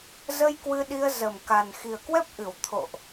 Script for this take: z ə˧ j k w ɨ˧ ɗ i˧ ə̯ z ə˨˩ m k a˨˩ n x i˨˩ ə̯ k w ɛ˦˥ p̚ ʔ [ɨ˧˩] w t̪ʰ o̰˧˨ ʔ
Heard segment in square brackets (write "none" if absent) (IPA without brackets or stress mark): ɨ˧˩